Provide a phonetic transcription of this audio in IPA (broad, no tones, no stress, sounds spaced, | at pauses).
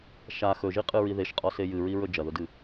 ʃ a x ɵ ʒ i qʼ ɨ ɹ i ð e ʃ qʼ ɔ s e j ɨ ɹ i ɹ ɵ d͡ʒ ɐ ð ʊ d ɨ